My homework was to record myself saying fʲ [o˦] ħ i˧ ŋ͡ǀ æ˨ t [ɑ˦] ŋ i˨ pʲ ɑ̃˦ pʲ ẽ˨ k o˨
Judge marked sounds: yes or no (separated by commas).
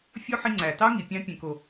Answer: yes, yes